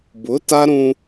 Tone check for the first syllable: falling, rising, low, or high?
rising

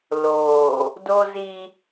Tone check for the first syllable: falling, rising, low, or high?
low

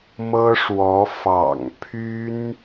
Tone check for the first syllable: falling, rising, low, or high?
high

